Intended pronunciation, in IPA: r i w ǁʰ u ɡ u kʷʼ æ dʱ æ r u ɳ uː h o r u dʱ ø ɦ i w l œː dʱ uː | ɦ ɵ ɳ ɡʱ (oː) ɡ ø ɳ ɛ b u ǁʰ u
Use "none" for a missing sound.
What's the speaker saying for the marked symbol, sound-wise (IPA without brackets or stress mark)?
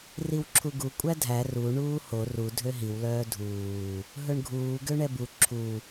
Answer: uː